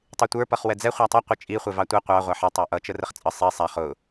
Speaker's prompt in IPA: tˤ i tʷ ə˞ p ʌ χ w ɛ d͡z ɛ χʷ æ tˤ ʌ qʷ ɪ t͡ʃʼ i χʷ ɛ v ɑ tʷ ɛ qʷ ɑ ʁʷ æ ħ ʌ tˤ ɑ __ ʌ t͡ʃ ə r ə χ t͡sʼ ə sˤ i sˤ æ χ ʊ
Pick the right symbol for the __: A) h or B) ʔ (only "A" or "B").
B